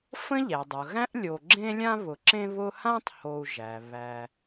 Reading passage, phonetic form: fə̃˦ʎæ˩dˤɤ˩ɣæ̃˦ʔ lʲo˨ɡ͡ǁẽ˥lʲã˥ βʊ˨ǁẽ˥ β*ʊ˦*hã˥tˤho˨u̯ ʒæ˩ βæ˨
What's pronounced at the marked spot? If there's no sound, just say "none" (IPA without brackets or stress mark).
ʊ˦